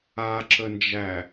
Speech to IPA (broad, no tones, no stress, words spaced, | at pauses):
aǁənd͡ʒæ